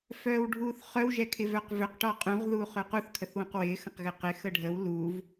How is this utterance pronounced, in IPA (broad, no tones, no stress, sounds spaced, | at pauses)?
f œː w ɖʱ uː θ χ œ w ʒ ɛ kʰ ɪ v œ q v ø q ʈ ɔ qʼ ũ ʁ ð uː χ ø q u θ kʰ ə θ w ũ q w ɪː x ɐ̃ q ɣ ɪ q ɪ x ə ɖʱ ə w l u v